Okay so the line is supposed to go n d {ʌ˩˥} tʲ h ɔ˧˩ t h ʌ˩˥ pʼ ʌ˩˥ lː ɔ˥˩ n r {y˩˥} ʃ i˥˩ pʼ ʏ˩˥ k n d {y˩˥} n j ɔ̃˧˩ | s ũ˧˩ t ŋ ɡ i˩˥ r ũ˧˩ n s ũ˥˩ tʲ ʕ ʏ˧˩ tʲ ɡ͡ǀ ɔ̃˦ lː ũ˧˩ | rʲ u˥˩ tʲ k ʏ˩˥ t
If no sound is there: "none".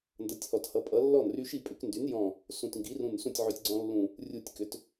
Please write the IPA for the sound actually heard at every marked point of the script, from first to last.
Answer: ʌ˩˥, y˦, y˩˥

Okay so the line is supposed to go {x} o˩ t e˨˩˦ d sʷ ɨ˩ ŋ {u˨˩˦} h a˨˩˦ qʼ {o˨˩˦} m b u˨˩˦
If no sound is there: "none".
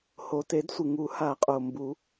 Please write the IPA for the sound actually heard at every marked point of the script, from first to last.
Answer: h, u˨˩˦, o˩

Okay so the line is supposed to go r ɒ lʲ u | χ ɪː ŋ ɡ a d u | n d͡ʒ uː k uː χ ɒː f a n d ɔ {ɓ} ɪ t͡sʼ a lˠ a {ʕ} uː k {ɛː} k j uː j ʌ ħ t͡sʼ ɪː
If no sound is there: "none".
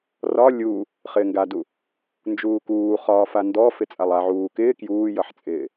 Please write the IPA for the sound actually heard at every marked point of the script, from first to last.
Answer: f, ʕ, ɪː

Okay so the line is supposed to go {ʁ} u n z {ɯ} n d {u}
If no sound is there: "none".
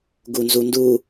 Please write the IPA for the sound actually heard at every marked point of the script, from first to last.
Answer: ɡ, u, u

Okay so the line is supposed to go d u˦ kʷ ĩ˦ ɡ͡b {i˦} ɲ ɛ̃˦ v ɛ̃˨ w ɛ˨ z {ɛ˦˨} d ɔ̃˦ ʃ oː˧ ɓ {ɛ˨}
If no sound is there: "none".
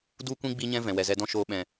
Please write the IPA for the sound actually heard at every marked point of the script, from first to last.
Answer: i˦, ɛ˧, ɛ̃˨

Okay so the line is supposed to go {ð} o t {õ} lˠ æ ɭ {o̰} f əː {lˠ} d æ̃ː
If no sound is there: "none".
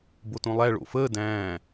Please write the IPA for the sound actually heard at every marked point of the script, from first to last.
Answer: b, õ, o̰, none

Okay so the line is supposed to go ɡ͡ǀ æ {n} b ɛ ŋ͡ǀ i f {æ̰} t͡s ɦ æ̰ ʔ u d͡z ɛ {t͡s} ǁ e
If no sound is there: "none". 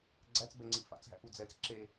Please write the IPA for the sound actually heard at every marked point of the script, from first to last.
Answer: t͡s, a̰, t͡s

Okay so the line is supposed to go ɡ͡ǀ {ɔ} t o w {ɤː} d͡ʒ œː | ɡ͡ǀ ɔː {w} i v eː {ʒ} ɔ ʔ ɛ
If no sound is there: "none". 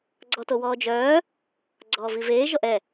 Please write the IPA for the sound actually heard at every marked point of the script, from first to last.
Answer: ɔ, ɔː, v, ʒ

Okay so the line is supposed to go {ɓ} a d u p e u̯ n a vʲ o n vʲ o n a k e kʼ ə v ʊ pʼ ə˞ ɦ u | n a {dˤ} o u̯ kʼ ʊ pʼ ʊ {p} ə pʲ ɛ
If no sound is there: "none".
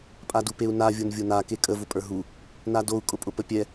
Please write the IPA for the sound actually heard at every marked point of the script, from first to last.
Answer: pʼ, d, p

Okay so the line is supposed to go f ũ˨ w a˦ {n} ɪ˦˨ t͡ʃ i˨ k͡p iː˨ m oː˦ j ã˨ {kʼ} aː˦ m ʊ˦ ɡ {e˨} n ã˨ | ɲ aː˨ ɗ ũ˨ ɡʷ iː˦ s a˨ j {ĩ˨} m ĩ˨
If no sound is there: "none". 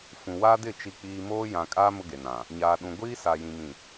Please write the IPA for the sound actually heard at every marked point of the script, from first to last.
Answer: d, kʼ, e˨, ĩ˨

